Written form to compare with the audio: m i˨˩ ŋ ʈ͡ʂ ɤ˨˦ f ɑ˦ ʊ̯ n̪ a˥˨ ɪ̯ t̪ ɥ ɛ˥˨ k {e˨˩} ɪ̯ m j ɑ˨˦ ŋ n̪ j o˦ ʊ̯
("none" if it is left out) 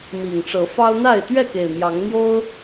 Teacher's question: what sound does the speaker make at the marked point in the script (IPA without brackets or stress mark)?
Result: e˨˩